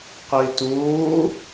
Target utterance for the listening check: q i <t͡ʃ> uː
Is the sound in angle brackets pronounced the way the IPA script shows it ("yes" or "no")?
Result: no